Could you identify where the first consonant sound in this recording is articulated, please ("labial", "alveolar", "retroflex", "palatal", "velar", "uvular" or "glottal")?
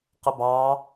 uvular